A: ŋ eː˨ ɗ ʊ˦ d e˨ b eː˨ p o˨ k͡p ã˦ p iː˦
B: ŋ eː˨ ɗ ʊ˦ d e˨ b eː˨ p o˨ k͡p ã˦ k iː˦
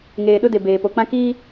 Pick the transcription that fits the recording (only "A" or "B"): B